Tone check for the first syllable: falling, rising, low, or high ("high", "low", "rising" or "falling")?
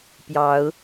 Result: rising